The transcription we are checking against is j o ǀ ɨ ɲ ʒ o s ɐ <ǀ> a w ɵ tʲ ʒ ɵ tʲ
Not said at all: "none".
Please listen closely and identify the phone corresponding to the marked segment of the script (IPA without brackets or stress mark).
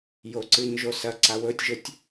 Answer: ǀ